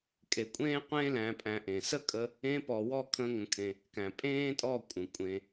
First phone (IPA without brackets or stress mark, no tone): kʼ